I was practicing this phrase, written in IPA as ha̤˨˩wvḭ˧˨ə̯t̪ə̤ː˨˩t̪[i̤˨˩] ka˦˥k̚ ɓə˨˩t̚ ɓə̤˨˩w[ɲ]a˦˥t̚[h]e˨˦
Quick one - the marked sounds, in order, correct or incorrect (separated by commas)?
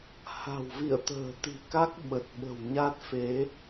correct, correct, incorrect